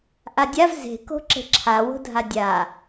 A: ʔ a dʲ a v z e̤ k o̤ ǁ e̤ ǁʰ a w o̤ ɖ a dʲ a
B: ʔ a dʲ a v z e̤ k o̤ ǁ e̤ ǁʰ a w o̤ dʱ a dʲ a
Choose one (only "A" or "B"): B